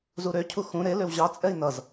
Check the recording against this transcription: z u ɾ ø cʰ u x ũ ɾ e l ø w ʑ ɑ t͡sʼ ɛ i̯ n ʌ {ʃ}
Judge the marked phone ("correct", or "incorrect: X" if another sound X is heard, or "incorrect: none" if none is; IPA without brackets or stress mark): incorrect: z